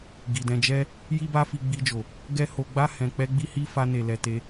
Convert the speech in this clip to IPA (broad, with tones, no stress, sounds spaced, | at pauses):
ɡ i˨ d ɛ̃˧ d͡ʒ ɛ˦ | j i˦ b a˦ f i˧ ɡ͡b i˧ d͡ʒ o˨ | ɡ ɛ˦ h o˧ ɡ͡b a˦ h ɛ̃˧ k͡p ɛ˦ ɡ͡b i˦ h i˦ f a˦ n e˧ l ɛ˧ t e˧